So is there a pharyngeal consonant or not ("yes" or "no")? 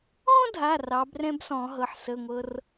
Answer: yes